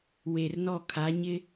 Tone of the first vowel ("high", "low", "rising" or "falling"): low